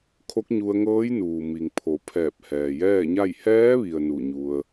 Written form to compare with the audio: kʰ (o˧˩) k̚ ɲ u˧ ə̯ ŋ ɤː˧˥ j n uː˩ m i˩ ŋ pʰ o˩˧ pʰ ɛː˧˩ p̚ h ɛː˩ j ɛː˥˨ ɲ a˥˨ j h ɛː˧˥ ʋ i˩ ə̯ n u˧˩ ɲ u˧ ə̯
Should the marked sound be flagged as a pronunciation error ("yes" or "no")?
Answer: yes